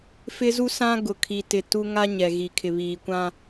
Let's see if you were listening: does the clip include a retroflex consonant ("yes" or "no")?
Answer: no